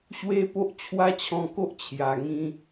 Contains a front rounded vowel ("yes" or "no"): no